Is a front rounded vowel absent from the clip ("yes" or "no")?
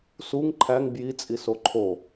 yes